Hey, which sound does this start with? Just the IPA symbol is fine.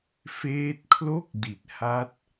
f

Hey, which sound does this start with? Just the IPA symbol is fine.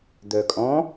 d̪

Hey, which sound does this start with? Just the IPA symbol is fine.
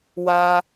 w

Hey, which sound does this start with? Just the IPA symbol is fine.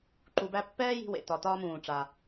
ǃ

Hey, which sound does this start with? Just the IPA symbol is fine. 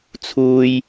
t͡sʰ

